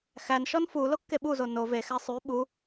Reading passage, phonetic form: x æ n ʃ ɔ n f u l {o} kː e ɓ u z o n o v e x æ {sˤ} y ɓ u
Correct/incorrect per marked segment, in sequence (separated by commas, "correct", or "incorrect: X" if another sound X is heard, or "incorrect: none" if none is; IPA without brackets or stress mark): correct, correct